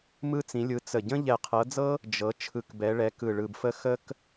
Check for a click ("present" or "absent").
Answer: absent